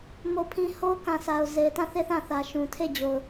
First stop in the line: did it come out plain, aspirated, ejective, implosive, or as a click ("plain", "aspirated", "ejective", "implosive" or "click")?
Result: aspirated